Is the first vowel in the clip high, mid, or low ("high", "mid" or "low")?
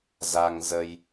low